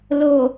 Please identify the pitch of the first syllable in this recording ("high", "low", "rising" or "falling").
low